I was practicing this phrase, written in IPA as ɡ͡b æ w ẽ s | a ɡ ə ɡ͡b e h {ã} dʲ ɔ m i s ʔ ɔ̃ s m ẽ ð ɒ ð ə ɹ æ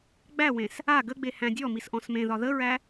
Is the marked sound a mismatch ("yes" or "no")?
yes